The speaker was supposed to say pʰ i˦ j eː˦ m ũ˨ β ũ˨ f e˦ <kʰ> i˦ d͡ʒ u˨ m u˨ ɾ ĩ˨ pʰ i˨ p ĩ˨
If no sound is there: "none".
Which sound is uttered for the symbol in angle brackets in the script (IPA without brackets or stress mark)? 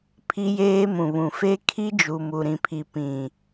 kʰ